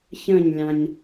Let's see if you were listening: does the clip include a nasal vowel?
yes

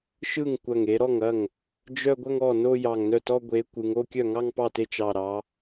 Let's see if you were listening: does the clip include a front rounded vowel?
yes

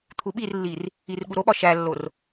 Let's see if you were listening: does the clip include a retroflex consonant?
no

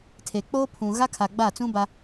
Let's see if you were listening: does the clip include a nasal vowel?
yes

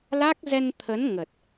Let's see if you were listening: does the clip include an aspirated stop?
yes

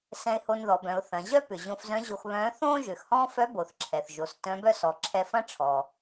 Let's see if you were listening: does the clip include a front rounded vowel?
yes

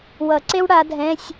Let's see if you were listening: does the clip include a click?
yes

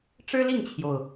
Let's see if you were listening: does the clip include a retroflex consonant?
yes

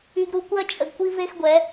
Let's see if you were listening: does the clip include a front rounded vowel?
yes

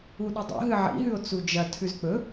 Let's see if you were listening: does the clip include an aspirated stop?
yes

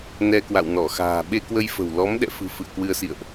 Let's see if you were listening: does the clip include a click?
no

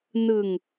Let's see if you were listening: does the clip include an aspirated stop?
no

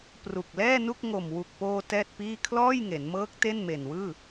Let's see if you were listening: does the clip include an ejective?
no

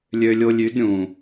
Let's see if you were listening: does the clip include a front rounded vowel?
yes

